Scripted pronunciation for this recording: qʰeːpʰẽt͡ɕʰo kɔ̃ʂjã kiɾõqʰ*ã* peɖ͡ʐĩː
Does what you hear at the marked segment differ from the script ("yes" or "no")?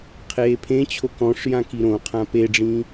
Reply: no